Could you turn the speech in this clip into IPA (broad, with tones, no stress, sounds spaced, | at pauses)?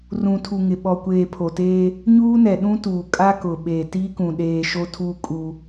r ũ˨ tʰ u˨ ŋ ɪ˨ ɓ ɔ˨ kʷ eː˨ pʰ o˨ t eː˦ | ɲ uː˦ n ɛ˨ ɗ ũ˦ t uː˨ kʼ a˦ k ʊ˨ ɓ eː˨ t iː˦ k ũ˨ ɗ eː˨ ʃ o˦ tʰ uː˦ kʼ u˦